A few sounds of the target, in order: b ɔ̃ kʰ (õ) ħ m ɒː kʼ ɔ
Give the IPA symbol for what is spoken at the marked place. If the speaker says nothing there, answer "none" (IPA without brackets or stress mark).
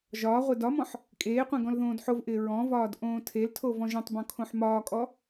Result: õ